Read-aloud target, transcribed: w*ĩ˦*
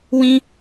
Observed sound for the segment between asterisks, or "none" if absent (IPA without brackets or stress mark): ĩ˦